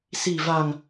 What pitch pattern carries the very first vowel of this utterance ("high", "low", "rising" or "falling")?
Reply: low